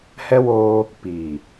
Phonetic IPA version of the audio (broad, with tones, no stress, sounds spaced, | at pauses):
h ɛ˦ w oː˦ | p iː˨